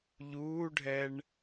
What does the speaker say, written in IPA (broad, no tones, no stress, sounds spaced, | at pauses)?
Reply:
ʎ uː ɖʱ ɛ ɳ